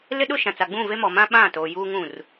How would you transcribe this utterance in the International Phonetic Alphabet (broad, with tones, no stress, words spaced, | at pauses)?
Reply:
lɪ˦ɗʊ˦ʃã˨t͡sa˨ ɡ͡bũ˦˨ve˦mɔ˨ mã˦ɓã˦˨toː˨ juː˦ŋũ˦˨r